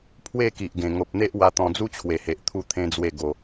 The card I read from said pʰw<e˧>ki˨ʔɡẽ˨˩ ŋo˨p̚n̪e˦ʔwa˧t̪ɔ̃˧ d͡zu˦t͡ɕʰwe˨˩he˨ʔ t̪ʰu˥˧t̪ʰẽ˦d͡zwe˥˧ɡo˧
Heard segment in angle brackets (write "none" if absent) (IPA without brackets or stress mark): e˥˧